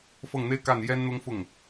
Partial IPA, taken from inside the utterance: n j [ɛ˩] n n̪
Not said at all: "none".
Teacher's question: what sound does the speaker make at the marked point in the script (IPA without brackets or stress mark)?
ɛ˥